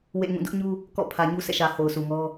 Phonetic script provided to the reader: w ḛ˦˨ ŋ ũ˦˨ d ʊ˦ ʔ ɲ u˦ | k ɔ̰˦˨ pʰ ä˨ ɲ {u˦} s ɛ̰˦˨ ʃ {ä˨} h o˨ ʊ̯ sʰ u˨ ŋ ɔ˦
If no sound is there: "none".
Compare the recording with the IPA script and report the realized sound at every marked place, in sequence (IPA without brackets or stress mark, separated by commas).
u˦, ä˨